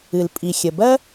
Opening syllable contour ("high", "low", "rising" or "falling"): low